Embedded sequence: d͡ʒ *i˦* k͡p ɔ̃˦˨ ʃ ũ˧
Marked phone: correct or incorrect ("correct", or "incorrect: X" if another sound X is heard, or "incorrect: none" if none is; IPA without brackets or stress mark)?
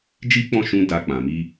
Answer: correct